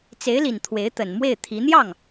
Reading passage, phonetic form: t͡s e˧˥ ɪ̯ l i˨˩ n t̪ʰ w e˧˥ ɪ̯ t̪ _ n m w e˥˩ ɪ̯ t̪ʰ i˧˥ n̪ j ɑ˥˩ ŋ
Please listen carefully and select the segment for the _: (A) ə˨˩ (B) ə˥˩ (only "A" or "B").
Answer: A